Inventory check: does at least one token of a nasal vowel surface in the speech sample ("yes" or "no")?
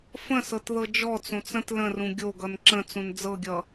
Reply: yes